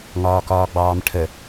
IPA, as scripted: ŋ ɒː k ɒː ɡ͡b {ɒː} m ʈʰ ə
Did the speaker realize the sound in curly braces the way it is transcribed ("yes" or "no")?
no